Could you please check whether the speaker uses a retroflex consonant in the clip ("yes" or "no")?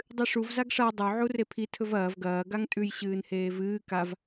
yes